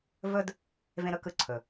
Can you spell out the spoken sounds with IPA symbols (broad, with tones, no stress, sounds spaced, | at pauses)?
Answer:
v ɵ˦ d | v ẽ˧ ɾ ɵ˦ k ɯ˧ ǀʰ ɵ˨